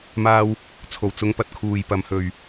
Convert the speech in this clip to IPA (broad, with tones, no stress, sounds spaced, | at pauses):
m aː˧ w | t͡sʰ o˨˩ w t͡s ʊ˨˧ ŋ p ɐ˨ t̚ kʰ uː˨˩ j p ɐ˨˩ m h ɵ˨˩ ɥ